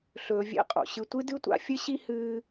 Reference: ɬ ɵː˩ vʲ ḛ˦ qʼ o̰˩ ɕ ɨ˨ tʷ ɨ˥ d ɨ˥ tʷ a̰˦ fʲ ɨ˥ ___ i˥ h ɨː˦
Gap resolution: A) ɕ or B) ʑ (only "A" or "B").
A